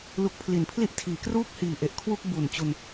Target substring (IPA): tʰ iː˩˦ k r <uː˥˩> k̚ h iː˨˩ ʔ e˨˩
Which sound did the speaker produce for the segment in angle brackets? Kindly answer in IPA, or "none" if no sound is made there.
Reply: uː˥˩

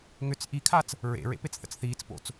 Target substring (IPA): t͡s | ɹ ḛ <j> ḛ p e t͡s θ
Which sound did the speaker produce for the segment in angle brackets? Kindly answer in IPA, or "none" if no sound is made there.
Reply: ɹ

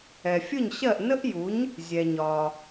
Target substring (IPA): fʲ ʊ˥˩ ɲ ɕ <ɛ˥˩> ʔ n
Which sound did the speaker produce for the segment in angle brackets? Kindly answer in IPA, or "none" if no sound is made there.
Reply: ɜ˥˩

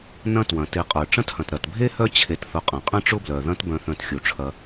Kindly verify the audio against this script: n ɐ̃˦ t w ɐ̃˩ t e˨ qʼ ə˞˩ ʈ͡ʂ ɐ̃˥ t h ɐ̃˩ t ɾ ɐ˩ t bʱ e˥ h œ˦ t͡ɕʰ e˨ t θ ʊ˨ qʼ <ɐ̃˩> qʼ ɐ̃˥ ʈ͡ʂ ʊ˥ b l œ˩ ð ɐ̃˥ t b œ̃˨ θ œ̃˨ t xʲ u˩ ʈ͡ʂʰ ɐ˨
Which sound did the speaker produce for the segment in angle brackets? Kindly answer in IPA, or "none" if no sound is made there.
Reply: ɐ̃˩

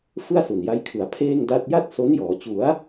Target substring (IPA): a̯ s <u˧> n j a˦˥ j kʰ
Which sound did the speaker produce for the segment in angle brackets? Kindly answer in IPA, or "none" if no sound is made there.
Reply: u˨˩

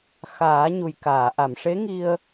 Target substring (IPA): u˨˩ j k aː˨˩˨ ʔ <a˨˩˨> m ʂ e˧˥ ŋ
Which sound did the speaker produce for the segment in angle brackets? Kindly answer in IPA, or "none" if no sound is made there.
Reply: a˨˩˨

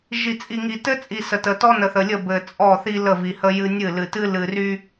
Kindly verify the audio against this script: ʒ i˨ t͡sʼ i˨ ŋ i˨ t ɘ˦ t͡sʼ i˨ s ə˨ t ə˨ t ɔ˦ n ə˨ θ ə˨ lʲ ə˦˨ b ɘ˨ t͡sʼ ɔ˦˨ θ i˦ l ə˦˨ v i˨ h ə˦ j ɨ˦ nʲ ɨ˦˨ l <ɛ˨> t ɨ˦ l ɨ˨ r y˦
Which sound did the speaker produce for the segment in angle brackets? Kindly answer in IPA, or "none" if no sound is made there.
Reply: ɨ˨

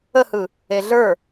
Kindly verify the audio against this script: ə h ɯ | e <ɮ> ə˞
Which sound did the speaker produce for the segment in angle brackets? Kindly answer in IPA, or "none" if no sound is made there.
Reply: ɮ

